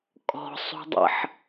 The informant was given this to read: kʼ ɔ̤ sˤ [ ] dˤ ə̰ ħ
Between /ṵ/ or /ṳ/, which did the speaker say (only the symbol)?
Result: ṳ